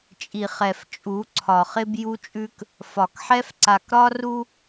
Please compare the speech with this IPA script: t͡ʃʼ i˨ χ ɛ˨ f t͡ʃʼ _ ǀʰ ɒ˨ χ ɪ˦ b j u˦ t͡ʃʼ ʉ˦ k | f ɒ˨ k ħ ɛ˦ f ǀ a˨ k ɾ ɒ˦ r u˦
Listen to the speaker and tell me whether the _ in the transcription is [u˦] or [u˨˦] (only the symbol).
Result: u˨˦